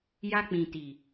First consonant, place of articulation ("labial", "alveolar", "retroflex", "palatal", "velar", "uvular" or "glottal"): palatal